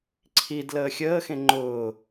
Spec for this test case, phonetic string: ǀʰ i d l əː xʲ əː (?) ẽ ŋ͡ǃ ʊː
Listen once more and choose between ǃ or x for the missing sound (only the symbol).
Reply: x